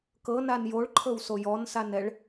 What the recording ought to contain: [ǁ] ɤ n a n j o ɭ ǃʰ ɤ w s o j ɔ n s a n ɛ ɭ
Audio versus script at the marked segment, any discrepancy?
yes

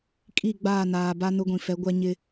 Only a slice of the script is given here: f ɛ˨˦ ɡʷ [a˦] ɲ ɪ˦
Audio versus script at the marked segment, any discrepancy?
no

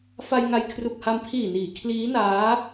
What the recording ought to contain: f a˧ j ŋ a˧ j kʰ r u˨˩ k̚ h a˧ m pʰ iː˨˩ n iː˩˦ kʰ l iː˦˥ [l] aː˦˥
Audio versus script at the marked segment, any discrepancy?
yes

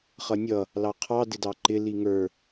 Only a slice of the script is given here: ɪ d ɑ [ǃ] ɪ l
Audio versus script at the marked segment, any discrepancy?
no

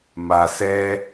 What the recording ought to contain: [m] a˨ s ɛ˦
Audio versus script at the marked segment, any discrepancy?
no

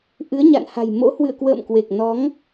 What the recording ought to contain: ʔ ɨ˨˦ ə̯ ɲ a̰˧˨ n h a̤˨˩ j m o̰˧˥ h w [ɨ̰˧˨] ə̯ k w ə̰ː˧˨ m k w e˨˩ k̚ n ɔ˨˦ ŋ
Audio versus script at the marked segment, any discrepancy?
no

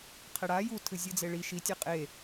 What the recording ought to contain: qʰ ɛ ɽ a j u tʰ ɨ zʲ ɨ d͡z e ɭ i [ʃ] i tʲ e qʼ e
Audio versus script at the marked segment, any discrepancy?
no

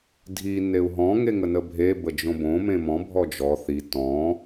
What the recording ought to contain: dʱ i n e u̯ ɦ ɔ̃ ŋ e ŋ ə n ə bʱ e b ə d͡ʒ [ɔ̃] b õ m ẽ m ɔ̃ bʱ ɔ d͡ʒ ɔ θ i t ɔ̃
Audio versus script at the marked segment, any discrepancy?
yes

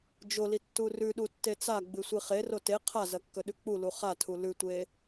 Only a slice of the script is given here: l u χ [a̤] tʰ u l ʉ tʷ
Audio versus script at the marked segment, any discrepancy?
yes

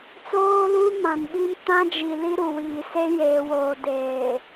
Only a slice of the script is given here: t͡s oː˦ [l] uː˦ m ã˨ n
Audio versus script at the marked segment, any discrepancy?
no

